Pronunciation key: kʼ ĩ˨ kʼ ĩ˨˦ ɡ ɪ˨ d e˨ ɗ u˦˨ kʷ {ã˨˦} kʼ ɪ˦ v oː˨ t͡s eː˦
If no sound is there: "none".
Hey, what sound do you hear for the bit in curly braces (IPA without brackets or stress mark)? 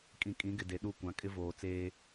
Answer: ã˨˦